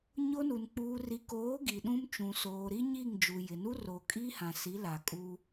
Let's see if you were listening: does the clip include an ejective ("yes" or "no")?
yes